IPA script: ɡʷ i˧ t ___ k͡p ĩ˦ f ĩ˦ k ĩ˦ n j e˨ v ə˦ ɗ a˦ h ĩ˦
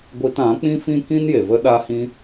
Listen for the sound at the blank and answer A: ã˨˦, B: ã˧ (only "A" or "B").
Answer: A